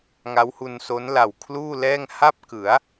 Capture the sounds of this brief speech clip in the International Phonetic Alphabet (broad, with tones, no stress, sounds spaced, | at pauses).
ŋ a˦˥ w h u˧ n s o˦˥ n l a˨˩ w kʰ l uː˥˩ l ɛː˥˩ ŋ h a˥˩ p̚ k ɯ˩˦ a̯